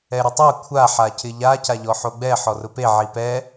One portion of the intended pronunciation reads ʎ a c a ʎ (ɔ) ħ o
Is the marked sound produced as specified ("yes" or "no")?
yes